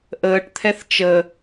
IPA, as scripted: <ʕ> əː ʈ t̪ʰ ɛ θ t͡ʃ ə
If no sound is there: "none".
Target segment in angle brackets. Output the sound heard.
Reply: ʔ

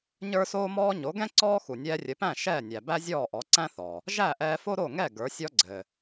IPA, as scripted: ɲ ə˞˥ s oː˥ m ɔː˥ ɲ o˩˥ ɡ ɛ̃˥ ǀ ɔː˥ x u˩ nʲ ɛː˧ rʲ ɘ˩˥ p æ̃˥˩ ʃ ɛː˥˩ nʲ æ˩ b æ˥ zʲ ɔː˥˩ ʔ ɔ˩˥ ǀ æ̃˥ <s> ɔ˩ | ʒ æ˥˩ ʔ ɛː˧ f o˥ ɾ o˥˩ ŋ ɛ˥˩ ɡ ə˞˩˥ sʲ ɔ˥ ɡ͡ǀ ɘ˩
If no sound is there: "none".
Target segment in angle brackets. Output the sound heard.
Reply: θ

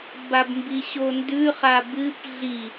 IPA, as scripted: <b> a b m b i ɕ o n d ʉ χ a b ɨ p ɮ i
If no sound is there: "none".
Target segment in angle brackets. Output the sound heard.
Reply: b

